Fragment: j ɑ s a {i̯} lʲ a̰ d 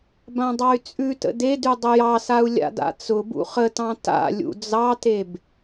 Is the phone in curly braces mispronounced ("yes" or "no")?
yes